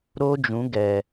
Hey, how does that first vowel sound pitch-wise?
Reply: high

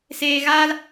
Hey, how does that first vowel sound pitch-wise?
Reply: high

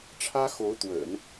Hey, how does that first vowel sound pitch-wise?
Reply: high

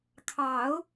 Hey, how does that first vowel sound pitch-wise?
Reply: low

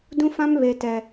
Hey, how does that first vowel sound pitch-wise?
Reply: high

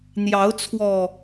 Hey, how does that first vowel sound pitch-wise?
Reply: rising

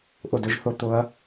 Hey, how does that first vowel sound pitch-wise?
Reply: falling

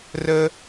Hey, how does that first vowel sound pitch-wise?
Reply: high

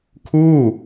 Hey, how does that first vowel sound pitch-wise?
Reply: falling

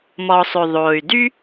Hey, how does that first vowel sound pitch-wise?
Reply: low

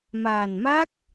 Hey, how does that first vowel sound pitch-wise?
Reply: low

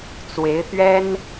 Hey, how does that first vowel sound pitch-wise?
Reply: rising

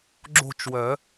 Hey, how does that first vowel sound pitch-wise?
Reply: falling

